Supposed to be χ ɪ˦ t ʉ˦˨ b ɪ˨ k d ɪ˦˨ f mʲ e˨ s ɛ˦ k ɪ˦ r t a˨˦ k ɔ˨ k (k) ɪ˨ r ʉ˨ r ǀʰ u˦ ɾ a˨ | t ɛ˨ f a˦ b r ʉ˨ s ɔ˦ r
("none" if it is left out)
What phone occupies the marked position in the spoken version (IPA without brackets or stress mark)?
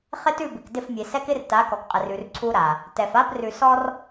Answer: qʼ